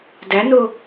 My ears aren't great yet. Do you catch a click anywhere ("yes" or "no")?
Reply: no